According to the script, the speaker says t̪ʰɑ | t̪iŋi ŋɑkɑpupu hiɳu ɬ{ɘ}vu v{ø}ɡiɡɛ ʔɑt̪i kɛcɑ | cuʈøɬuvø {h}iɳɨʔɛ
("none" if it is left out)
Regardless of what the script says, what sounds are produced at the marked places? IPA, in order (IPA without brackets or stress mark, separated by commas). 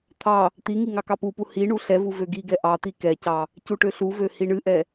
ɛ, ø, h